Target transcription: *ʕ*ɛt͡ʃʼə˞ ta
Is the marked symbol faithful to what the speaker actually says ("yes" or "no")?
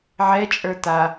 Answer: yes